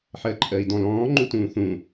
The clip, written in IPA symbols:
ħ əː ǃʼ əː i̯ d ɔ̃ l ɔ̃ː ŋ͡ǃ u t ũː θ ũ

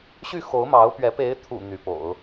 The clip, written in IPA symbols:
ɕ y˥˩ x o˧˥ ʊ̯ m ɑ˧˥ ʊ̯ p ɥ ɛ˧˥ p e˧˥ ɪ̯ t̪ʰ ṵ˨˩ n̪ y˧˥ p o̰˨˩˦ ʊ̯

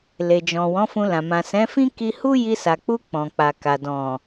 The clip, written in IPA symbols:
l e˨ d͡ʒ ɔ̃˨ w ɔ̃˨˦ f ũ˧ l ã˨ m ã˨ s ɛ̃˨˦ f ĩ˦ k i˧ h u˦ j i˧ s a˨ k͡p u˧ k͡p ɔ̃˨ k͡p a˨ k a˨ d ɔ̃˨

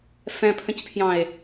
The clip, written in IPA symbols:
f ɛ̃ pʰ ə̃ c pʰ j ɑ̃ e̯

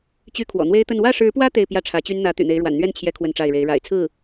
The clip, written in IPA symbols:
t͡ɕ y˥ kʰ w ɔ̰˨˩ n̪ w e˥ ɪ̯ t̪ ə˥˧ n w ä˥˩ ʂ ɻ̩˧˥ p w ä˥ t̪ e˥˧ ɪ̯ p j ä˥˩ ʈ͡ʂʰ ä˧˥ t͡ɕ y˥ n n̪ ä˧˥ t̪ y̰˨˩ n̪ e˧˥ ɪ̯ ɻ w a̰˨˩ n n̪ ɥ ɛ˥˩ n t͡ɕʰ j ɛ˧˥ kʰ w ə˥˧ n ʈ͡ʂ a˥˩ ɪ̯ ɻ e˧˥ ɪ̯ ɻ a̰˨˩ ɪ̯ t͡sʰ ɹ̩˥˩

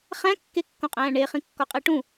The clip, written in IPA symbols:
χ æ̃ kː e kː õ qʼ æ̃ː ɳ e χ ĩ kː ɒ qʼ e ʈ ũ

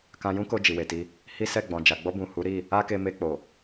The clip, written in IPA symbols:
k ã˧ j ũ˦ k o˧ d͡ʒ i˨ w e˨ t i˧ | h i˦ s ɛ˦˨ ɡ͡b ɔ̃˨ d͡ʒ a˨ ɡ͡b ɔ˧ b ũ˨ h u˨˦ ɾ i˦˨ | a˦ k e˧ m e˧ k͡p o˨

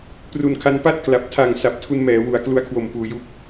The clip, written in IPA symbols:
p r u˨˩ n kʰ a˧ n p a˥˩ t̚ k l a˨˩ p̚ tʰ a˨˩ ŋ s a˨˩ p̚ tʰ u˧ n m ɛː˩˦ w u˩˦ a̯ k l u˦˥ a̯ kʰ w o˨˩ m p uː˧ j u˥˩ k̚

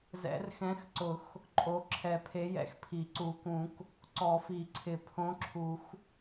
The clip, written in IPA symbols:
z ɛ̰˨˩˦ r x ɛ̃˨˥ x ǀ ʊ˨˩˦ x | ǃʼ o˨˥ ǁʰ ɛ˨˩˦ pʰ e˨˥ j ɛ̰˨˥ x pʰ i˨˩˦ ǀ u˨˩˦ k ũ˨˩˦ k | ǀ ɔ˨˩˦ f i˨˩˦ ǀʰ ɪ˨˩˦ pʰ õ˨˥ ǁʰ u˨˩˦ x

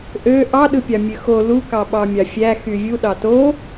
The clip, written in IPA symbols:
ʔ ø ʔ ɑ ɗ ɯ pʲ ɑ mʲ ø x o l u k ɑ ɓ ɑ mʲ ɑ fʲ æ x y vʲ u ɗ ɑ t o

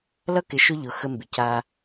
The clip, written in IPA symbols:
l ʌ˦ k ɪ˨ ʃ ʊ˦ ʎ ʊ˨ x ə˦ m b ɪ˨ c a˦

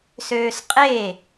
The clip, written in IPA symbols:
s øː s qʼ e

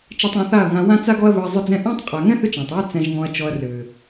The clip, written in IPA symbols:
t͡ʃ a˧ tˤ ɔ̃˨˦ θ a˦˨ ɐ̯ ŋ ã˧ w ã˦ t͡s a˦ ɡ ɔ˦ ɐ̯ β ɵ˧ ɐ̯ zˤ ʏ˦ d͡z ɛ̃˦ ʔ ɔ̃˦ tˤ qʼ a˨ ŋ ɛ̃˦ θ ʏ˦ t͡ʃ æ̃˨ tˤ w ʏ˦ t͡s ɛ̃˧ ʒ ŋ ɔ̃˧ ɐ̯ t͡ʃ ɔ˧ ɐ̯ r ʏː˨

